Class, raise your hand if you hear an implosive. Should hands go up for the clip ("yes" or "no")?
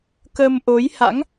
no